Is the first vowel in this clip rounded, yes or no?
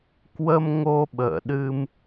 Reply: no